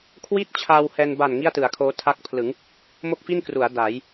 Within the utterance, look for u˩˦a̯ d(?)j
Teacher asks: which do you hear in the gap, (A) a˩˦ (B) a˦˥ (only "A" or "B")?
A